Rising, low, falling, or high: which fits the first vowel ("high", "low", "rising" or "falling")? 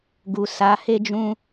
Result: low